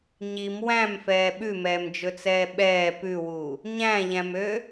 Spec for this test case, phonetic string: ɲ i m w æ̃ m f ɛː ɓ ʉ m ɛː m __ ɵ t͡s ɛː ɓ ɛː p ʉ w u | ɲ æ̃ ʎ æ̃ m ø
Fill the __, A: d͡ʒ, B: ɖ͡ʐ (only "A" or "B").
A